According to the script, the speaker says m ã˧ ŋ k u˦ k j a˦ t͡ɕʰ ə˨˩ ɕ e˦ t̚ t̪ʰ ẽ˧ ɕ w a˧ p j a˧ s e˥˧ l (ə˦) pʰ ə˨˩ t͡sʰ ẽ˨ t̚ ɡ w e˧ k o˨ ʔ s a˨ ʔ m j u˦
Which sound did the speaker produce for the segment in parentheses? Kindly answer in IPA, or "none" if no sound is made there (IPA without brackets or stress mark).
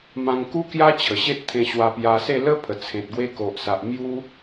ə˦